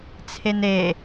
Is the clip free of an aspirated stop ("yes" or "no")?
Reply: no